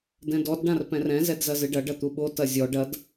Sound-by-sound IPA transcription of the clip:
d ɛ̃ d ɔ d ɖ ã r p ɛ̃ r ɛ̃ z ɛ d z ɐ z ɨ ɖ ɐ ɖ ɐ t̪ u ɓ o t ɐ zʲ ɔ ɖ ɐ d

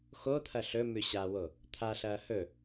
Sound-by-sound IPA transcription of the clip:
x o t̪ʰ ɐ ɬ ɵ m ʉ ɕ a w o | t̪ʰ a ɬ ɐː h ɵ

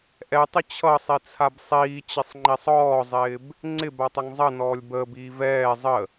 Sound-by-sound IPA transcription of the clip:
ʔ ɛ tˤ ɪ t͡ɕʰ ʌ sˤ i t͡sʰ a b sˤ iː t͡ɕ ɪ sˤ ŋ͡ǃ i sˤ ɔː zˤ ɪː b | ŋ͡ǀ ɪ b a tˤ ʌ ŋ zˤ ʌ n ɔː lʲ b əː b iː v ɛː zˤ ə

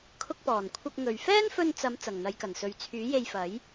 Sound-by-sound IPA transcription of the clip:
kʰ ʊ˧ k̚ p ɔː˨˩ n kʷʰ ɐ˧ k̚ ŋ ɵ˨˩ ɥ f ɛː˥ n f ɵ˧ n t͡s ɐ˨˧ m t͡s ɐ˨˩ ŋ n̪ ɐ˨˧ j k ɐ˨˩ n s ɵ˨ ɥ t͡sʰ yː˨˥ j e˧ j f ɐ˨˥ j

